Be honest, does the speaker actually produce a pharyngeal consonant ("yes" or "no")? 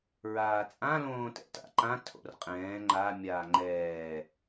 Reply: no